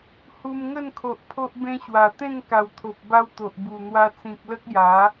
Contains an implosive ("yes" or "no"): no